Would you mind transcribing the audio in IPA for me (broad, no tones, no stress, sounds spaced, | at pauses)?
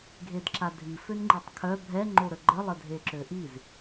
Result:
ɡʱ e d ǁ a dʱ i f ø n ŋ͡ǃ i tˤ kʰ œ bʱ ɛ ŋ͡ǃ o ɾ ə ɡ͡ǃ ə lˠ ə dʱ e ǁ ø ʔ i z